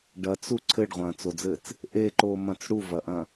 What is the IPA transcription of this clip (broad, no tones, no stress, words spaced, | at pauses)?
ɖɐt͡su ǀʰɘɖʁʷɐ̃ːt͡sod͡zɘːt͡s | ʔeǃoːmɐ̃t͡s ɽuvɐʔɐ̃